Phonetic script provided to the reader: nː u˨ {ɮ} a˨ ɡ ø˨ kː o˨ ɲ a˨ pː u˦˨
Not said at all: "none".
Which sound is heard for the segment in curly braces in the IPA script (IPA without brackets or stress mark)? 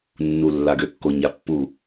lː